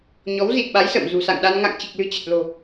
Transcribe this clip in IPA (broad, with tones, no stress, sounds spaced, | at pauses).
ɲ ɔ˨˦ w z i˨˩ t̚ ɓ a˨˦ j s ə̰ː˧˨ m z ṳ˨˩ s a̰˧˨ ŋ ɗ a˧ n ŋ a̰˧˨ ŋ t͡ɕ i˨˩ k̚ l ɨ̤˨˩ t͡ɕ ə˨˩ t̚ l o̤˨˩